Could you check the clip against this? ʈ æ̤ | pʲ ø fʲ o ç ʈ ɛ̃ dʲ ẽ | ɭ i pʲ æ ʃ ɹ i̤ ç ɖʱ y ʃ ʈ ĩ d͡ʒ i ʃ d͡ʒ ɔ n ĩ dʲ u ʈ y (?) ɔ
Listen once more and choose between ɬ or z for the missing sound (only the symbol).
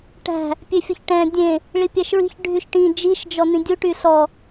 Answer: ɬ